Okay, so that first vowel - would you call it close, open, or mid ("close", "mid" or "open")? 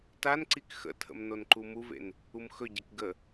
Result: open